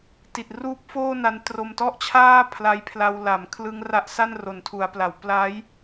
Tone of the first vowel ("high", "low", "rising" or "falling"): low